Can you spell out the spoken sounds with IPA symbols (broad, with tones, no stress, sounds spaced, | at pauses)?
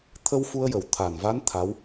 t̪ʰ ə˧ w f u˧ ə̯ j ə˨˩ w t̪ʰ a˨˩ n v a˧˥ n t̪ʰ a˧˥ w